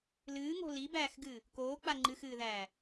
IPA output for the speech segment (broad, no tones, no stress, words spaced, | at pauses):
lɨːŋo̤ libæːxɡɨː | koːk͡pa ŋ͡ǃɨxɨːðæː